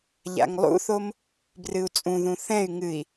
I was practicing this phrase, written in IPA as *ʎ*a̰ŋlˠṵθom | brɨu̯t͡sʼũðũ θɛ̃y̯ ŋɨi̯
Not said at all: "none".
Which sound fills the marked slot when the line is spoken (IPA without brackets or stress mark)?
ʎ